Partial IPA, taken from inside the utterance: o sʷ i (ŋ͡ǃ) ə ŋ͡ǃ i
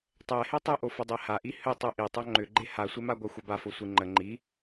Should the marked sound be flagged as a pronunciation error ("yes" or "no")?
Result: no